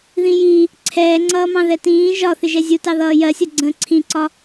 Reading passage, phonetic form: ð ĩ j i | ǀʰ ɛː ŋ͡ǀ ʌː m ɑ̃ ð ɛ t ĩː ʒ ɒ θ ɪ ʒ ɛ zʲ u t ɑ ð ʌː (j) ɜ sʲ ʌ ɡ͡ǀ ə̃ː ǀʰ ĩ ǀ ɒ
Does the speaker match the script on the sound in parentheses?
yes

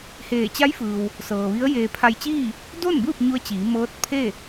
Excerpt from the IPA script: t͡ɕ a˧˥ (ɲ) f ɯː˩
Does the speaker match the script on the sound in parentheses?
no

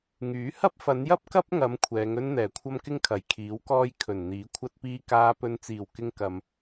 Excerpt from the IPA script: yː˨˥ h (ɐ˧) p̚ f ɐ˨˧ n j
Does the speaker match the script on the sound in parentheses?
no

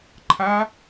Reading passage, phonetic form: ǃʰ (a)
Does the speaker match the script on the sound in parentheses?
yes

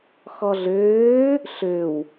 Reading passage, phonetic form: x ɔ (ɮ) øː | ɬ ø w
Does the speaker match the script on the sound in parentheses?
yes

